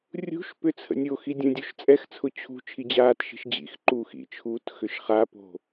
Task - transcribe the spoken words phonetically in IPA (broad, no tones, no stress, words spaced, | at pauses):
rʲṳʃpʏ t͡sʰə̰nʲoxi dʲə̃dʲoʃ t͡sʼɛxt͡sʰʊ t͡ɕʰṳ t͡ʃʰid͡ʑaːtʃi̤ʃ d͡ʑḭxǃuːx ḭt͡ʃʰuːt xʏʃχapo̤